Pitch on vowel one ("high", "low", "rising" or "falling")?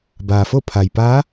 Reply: low